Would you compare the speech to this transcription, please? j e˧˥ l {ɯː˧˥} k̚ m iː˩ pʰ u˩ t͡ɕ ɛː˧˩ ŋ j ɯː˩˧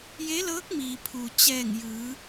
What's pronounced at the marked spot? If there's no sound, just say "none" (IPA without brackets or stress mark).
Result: ɤː˧˥